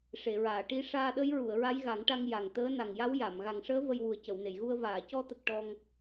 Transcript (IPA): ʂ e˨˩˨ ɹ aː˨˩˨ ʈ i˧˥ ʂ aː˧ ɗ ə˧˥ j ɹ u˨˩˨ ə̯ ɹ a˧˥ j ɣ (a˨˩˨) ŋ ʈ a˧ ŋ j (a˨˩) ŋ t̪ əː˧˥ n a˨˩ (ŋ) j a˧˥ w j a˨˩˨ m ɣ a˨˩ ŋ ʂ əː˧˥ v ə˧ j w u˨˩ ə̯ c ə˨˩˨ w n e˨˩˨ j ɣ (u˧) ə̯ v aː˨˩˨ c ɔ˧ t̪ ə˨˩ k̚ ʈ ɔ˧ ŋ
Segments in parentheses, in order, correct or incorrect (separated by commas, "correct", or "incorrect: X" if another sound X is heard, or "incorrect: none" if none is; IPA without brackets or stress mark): incorrect: a˨˩˦, correct, correct, correct